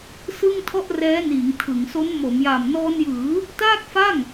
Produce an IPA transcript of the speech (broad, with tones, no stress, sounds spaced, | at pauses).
s ɯ˥˩ ŋ tʰ ɔ˥˩ ʔ r ɛː˦˥ n iː˩˦ ŋ tʰ ɯ˩˦ ŋ s o˦˥ n m o˩˦ m j a˨˩ m n ɔː˧ n j ɯː˩˦ | t aː˥˩ k̚ f a˥˩ ŋ